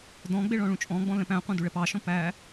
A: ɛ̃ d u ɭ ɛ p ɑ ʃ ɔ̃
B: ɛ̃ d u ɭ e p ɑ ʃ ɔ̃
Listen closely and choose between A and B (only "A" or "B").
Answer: A